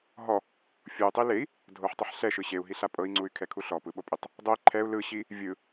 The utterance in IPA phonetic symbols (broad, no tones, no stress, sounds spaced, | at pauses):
ɦ ɔ | fʲ o y̯ tˤ i l e i̯ | dʱ o ħ tˤ ɤ ħ ɬ ɛ ʃ ɯ ɕ e u̯ ɦ i ɬ a pʼ ɤ i̯ ŋ͡ǀ u y̯ kʰ ɛ kʰ u ɬ ɔ p ɯ ɓ o pʼ i tˤ | dˤ o i̯ ǃʰ ɛ u̯ l ɯ ɕ i | vʲ ɯ